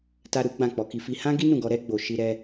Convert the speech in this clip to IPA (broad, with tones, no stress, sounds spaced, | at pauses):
t a˧ ɾ u˦ ɡ͡b ã˦˨ k͡p ɔ˨˦ k i˧ f i˧ h ã˦ ɡ i˦ n ũ˦˨ ɡ ɔ˧ ɾ ɛ˦ ɡ͡b o˧ ʃ i˦ ɾ ɛ˦